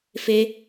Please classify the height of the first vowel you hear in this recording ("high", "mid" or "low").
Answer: mid